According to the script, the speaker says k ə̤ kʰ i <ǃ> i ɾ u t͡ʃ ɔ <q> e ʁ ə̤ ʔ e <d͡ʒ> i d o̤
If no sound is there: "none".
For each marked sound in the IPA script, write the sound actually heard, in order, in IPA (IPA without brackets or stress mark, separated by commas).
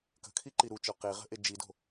ǃ, q, d͡ʒ